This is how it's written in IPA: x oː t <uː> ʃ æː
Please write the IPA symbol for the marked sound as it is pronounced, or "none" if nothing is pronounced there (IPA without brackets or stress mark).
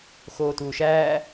uː